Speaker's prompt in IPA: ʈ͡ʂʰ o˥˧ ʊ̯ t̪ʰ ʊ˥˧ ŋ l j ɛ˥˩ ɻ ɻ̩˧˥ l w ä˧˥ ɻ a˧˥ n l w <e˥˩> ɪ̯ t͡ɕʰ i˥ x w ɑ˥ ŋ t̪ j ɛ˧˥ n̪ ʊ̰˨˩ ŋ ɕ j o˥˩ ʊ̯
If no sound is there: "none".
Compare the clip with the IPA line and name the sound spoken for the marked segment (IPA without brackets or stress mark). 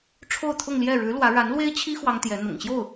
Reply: e˥